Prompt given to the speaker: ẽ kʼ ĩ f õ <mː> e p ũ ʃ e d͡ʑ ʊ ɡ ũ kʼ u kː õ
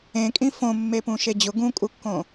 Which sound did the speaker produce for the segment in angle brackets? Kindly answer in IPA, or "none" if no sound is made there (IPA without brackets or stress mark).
mː